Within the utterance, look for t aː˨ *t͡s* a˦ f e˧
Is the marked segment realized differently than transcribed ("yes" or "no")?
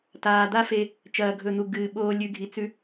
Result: yes